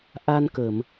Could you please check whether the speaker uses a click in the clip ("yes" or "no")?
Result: no